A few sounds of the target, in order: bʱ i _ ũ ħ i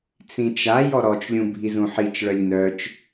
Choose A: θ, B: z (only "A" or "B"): B